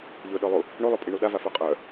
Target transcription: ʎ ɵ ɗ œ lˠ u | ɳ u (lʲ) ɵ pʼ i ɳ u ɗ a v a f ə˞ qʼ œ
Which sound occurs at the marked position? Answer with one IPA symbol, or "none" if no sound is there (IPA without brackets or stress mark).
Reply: lˠ